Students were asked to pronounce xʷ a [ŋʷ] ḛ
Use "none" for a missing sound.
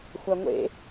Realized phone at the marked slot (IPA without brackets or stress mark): ŋʷ